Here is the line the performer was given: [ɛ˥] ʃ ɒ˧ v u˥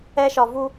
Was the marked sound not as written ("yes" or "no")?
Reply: no